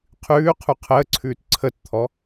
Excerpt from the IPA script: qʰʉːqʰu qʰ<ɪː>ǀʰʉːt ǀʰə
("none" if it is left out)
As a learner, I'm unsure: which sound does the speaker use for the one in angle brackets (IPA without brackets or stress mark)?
əː